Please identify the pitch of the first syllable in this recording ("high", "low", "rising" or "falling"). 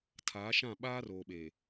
rising